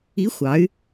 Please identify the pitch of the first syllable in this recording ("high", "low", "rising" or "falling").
rising